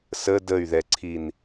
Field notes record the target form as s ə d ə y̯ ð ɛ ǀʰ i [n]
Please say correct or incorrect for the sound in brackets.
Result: correct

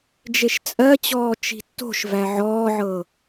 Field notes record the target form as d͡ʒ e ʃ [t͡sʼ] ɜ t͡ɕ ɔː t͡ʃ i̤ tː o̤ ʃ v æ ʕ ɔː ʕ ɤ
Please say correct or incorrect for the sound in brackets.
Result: correct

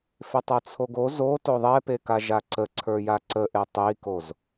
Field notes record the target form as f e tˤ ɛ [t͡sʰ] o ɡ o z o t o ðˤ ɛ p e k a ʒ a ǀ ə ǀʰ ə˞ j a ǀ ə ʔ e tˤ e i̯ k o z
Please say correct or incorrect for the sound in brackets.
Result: correct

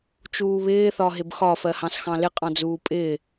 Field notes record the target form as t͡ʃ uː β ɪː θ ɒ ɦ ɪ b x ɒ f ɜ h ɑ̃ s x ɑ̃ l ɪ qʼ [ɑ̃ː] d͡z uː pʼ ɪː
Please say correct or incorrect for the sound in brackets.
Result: incorrect: ɑ̃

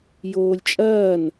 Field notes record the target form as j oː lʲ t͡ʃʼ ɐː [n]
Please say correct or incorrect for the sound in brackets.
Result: correct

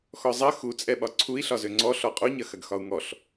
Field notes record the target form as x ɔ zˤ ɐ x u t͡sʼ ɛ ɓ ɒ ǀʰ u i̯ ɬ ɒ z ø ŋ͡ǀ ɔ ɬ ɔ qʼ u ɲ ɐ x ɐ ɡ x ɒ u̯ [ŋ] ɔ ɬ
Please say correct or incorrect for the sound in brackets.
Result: correct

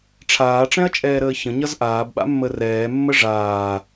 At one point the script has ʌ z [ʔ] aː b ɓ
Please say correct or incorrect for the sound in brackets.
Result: correct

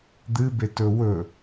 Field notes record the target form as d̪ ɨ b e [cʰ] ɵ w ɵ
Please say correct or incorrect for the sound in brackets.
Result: incorrect: t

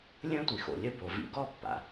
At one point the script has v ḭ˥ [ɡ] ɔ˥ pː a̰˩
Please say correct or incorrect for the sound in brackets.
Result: correct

